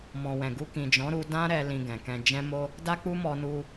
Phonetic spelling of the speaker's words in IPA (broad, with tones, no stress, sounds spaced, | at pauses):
m ɔ̃˨ w ɛ̃˨ ɡ u˧ k ĩ˨ d͡ʒ ɔ̃˨˦ ɾ u˧ d ã˦ ɾ ɛ˧ l ĩ˧ ɡ ɛ̃˨ k ɛ̃˧ d͡ʒ ɛ̃˦ m o˦ | d a˦ k͡p u˦ m ɔ˧ n u˧